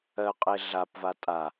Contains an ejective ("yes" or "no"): yes